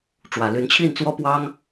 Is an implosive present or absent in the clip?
absent